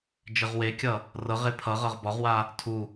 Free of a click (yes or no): yes